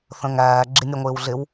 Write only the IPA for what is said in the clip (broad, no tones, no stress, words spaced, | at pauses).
θə̃ŋæː ɡ͡ǁinʲʌŋʷɪːwɮɪw